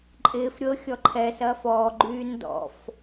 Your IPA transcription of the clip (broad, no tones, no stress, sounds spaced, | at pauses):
ǃʼ ɪː f ɾʲ ɤ xʲ ɔ ǃʰ ɛ s ɐː f ɔː ɡ͡ǃ yː n d ɔ̰ f